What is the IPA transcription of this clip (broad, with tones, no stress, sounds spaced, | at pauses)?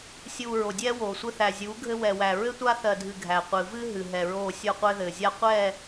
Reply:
sʲ uː˨ ɹ o˨ dʲ ɛː˦ w oː˨ sʷ ɘ˦ θ æ˨ zʲ uː˨˦ ɡʱ ɘ˦ w ɛ˨ w æ˨ ɹ ɘ˦ tʷ a˦ θ ɜ˨ dʱ ɨ˨ ɡʱ æ˨ qʷ ɨ˨ v ɨ˦ ɦ ɨ˨ ɦ ɛ˨ ɹ oː˦˨ sʲ o˦˨ qʷ ɘː˦ ð ɘː˨ zʲ a˦ qʷ ɛː˦˨